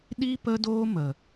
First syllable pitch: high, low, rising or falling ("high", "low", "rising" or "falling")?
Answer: high